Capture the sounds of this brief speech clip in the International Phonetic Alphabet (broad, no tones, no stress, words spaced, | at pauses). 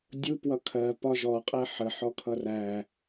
dʲupwʌ kʰɜ pɒʒɔqʼɛ ħəħɔkʰʌ ræ